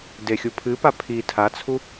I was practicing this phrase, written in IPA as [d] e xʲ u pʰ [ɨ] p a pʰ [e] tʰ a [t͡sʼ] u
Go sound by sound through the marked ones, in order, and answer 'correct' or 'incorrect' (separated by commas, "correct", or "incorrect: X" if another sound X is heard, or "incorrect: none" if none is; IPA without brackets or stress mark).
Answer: correct, correct, incorrect: i, incorrect: t͡sʰ